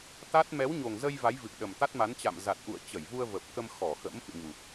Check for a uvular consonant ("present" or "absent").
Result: absent